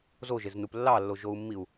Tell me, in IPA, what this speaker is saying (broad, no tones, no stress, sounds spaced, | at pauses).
z o ʒ e z n u p lː ɑ lː o ʒ o u̯ mː i u̯